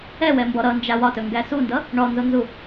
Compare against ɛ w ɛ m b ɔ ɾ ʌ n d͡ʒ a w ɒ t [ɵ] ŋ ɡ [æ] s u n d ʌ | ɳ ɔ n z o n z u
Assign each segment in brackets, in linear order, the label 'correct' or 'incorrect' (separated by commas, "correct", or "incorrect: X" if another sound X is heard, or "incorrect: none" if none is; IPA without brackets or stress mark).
correct, correct